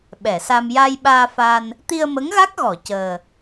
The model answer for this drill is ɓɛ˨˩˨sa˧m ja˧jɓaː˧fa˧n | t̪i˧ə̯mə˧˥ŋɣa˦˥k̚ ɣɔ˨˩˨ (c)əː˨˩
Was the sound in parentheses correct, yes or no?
yes